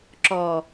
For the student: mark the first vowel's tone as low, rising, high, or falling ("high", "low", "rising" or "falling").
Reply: low